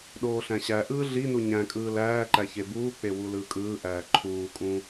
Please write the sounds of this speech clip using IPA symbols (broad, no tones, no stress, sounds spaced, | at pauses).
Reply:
ɗ oː ɬ æ̃ ɕ æ ʔ ɯː ɮ i n u ɲ æ̃ kʼ ɯː l æː ǃ æ ç e b uː k͡p e w u l ɯː kʼ ɯː ʔ æː ǃʰ uː kʼ ũ